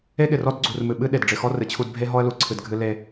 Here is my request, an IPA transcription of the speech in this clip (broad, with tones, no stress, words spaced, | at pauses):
e˦ɠɪ˨rɔ˦d ɡ͡ǀu˨rmɨ˨ ɓɨ˦ ɗe˨dɖ͡ʐɪ˨xɔ˦ rɨ˨t͡ɕʰu˦d bʱe˦ɦɔ˦ə̯lu˨ ǀʰɨ˨dɡʱɨ˦ le˦